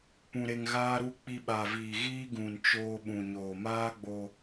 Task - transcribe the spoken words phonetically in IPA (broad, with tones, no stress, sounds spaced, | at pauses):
p ũ˧ ɾ e˧ ŋ ɣ aː˦ ɾ u˦ k͡p i˧ ɓ a˨ v iː˨ ɣ iː˦ ɡ ũ˨ n t͡ʃ oː˧ ɓ ũ˨ ɲ oː˨ m aː˦ ɡ͡b o˧